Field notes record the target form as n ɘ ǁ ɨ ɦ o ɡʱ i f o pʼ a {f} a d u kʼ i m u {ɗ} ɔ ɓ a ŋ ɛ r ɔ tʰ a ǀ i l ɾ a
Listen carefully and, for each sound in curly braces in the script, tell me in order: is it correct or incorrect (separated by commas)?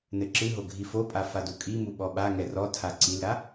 correct, incorrect